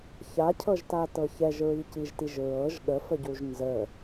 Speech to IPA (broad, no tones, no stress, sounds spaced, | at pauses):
ç a cʰ ɤ ʒ t a t ɤ ç ɛ ʒ ɹ i c i ʒ t i ʒ ɹ ɤ ʒ ɠ ə f ə ɟ u ʒ n z ə